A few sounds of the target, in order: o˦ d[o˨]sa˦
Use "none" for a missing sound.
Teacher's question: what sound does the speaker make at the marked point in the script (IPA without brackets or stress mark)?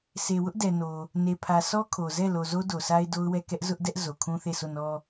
o˨